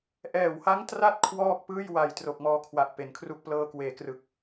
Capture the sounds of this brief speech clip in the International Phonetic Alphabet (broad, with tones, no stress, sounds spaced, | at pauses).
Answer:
ʔ ɛː˨˩ w h a˦˥ ŋ t r a˦˥ t̚ kʰ w ɔː˥˩ k̚ p ɯː˥˩ j w a˨˩ j t r o˨˩ k̚ m ɔː˧ kʰ w a˨˩ ʔ p e˩˦ n kʰ r u˥˩ k̚ p l ɤː˧ k w eː˩˦ k r ɯ˨˩ k̚